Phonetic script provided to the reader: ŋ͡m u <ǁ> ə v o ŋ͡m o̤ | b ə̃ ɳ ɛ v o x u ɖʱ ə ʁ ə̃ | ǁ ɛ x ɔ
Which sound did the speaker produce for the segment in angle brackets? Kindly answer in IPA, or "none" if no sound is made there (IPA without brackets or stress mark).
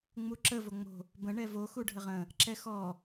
ǁ